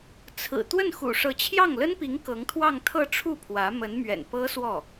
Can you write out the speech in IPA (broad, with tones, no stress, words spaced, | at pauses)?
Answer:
t͡sʰɹ̩˨˩ t̪wə˥˩nxṵ˨˩ʂɤ˧˥ t͡ɕʰjɑ˥˩ŋlə˥npi˧˥ŋ kɤ˧˥ŋt̪ʰwɑ˥˧ŋt̪ʰɤ˥˧ ʈ͡ʂʰu˥˩pʰwä˧˥ mə˧˥nmɥɛ̰˨˩npɤ˥ swɔ˥˩